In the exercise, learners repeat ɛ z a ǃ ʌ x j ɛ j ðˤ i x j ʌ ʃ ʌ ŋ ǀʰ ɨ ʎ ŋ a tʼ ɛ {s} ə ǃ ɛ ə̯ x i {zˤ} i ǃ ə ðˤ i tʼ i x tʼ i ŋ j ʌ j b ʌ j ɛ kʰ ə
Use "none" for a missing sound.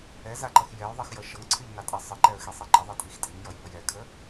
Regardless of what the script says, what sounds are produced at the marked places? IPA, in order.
sˤ, sˤ

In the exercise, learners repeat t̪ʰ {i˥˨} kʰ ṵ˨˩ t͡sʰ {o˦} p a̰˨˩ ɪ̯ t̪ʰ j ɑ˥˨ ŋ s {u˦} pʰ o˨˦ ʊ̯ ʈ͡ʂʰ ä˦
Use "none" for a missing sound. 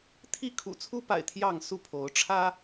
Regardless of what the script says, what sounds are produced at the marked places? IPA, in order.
i˥˨, u˦, u˥˨

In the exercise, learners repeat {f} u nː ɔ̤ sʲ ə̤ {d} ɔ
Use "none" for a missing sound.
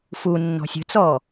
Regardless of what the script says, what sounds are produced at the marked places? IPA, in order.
f, t͡s

